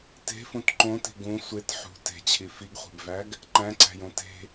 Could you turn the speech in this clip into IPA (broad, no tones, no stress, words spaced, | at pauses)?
te̤fũt ǃõti̤ ɡũ sʷet ħṳ te̤t͡ɕʰi fiɡχʷe̤bvæɡ | ǃæ̃ǀæ̤jõ te̤